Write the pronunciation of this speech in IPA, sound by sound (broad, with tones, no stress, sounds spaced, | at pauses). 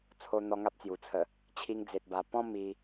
t͡sʰ o˧ n̪ ɔ˧ ŋ a˦ p̚ t͡s j u˨˩ t͡sʰ ə˨˩ | t͡ɕʰ i˧ ŋ d͡z e˨ t̚ b a˨˩ p ɔ̃˦ m i˧